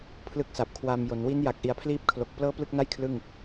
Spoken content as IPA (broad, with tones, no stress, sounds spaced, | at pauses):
pʰ l ɯ˦˥ k̚ s a˨˩ p̚ kʰ w a˧ m j o˩˦ n w i˦˥ n j a˨˩ k̚ ʔ i˩˦ a̯ pʰ l iː˦˥ p̚ kʰ l o˨˩ k̚ p l ɤː˥˩ p l ɯ˥˩ k̚ n a˥˩ j kʰ l ɯ˥˩ ŋ